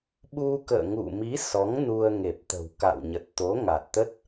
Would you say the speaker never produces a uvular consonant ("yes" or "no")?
yes